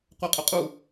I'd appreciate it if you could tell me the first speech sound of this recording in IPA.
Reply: qʷ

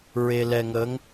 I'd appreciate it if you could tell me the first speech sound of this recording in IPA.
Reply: ɹ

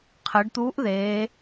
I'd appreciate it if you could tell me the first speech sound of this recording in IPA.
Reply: qʰ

